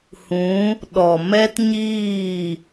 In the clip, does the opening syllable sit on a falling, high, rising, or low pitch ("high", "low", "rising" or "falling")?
rising